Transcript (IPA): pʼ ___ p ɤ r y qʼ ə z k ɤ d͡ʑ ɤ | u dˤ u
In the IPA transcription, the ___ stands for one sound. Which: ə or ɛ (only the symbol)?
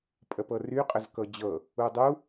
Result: ə